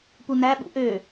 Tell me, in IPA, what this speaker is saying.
p u n æ ɓ ṵ ʔ ø

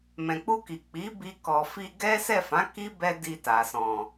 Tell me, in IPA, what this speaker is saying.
m ɛ̃˨ k͡p u˧ k i˨ k͡p i˨˦ b i˧ k ɔ˨ f i˧ ɡ ɛ˦ s ɛ˦˨ f ã˨˦ k i˦ b ɛ˧ d i˧ t a˨ s ɔ̃˨

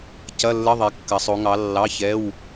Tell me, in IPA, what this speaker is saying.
c ɐ˧˥˧ lː ə˧˥˧ ðˤ ɛ˨˦ kː ɐ˨˦ sˤ o˨˦ ŋ ɑ˨˦ lː ɑ˧˥˧ ç ɛ˧˥˧ w

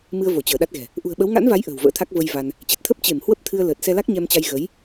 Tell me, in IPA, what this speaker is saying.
m ɨ˧ ə̯ v o˧˩ t͡ɕ əː˧˩ ɗ a˦˥ t̚ ɣ ɛ̤˨˩ | ʔ ṳ˨˩ ə̯ ɓ ə˨˦ w ŋ a̰˧˥ n v a˨˦ j ʔ ə̤ː˨˩ w v ə̰ː˧˥ t̪ʰ a˦˥ k̚ v ə˧ j v a˧ n | t͡ɕ e˨˩ t̚ t̪ʰ əː˦˥ p̚ t͡ɕ e˧˩ m h w ə˦˥ p̚ t̪ʰ ɨ˧ ə̯ l əː˨˩ t̚ s ɛ˧ l a˦˥ k̚ ɲ ɛ˧ m t͡ɕ a˧ j ɣ ə˨˦ j

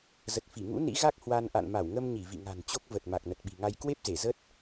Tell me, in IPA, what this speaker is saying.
z ə˨˩ t̚ f i˧˩ ŋ ṵ˧˥ n ḭ˧˥ ɣ a˦˥ k̚ h w a˧ n ʔ a̰˧˨ n m a˧˩ w ŋ ə˧ m ɲ i˧˩ v ḭ˧˨ ŋ a̤˨˩ n t͡ɕ o˦˥ k̚ v ə˨˩ t̚ m a˨˩ k̚ n ə˨˩ t̚ ɓ i̤˨˩ ŋ a˧ j k w e˦˥ p̚ z e˧˩ z ə˦˥ t̚

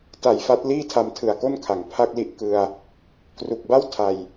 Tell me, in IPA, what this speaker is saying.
t a˨˩ j f a˦˥ t̚ l iː˥˩ tʰ a˧ m tʰ ɯ˨˩ a̯ k o˥˩ n kʰ a˩˦ ŋ pʰ a˥˩ k̚ l i˦˥ ʔ k ɯ˧ a̯ | k r u˨˩ k̚ b a˥˩ w tʰ a˨˩ j

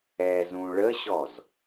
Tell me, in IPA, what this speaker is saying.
ɛ z ũ ɭ ə ɕ ɔ z

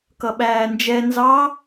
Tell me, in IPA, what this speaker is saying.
k ʌ ɓ æː n d͡ʒ ɛ n z ɑ

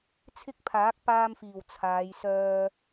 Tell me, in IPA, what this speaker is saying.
t͡sʰ ɪ˥ k̚ pʰ aː˨˥ k̚ p aː˧ m f iː˨˩ w t͡sʰ aː˨˧ j s œː˧

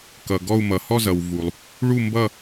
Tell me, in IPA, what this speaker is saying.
k ʌ˨ ɡ ɔ˥˧ u̯ m ʌ˨ h ɔ˥˧ z ʌ˨ w v u˨ lˠ | ɭ u˥˧ m b ʌ˥˧

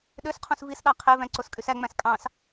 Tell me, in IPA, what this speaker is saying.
ɗ ø s qʰ ũ s v i s ɗ ɑ qʰ e v æ̃ ǀ o s kʼ y s æ ŋ͡m æ̃ s kʼ ɑ̃ s

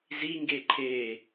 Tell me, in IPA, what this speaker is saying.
z i ŋ ɡ e ǃʰ e

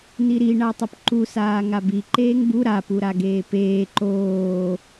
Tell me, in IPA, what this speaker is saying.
n̪ i ɾ i ɳ a tˤ ʊ p ǃ u s aː ŋ a b i ǃ eː ŋ b u ɾ a p u ɾ a ɡ eː p eː ǃ oː

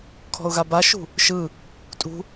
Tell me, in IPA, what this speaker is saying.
kʰ ɔ̤ ʊ̯ ɣ a b a ʃ ṳ | ʃ ɯ | tʼ ṳ

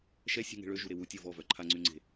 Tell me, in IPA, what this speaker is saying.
ʃ ɛ sʲ ṳ ŋ e̤ ɭ ø ʒ u ɾ e w u tʲ o v ɔ v œ ǃʰ a ŋ͡ǀ y ŋ͡ǀ e̤

